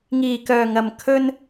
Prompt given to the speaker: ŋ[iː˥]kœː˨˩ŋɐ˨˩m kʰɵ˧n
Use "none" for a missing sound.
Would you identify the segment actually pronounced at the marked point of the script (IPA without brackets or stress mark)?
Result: iː˨˩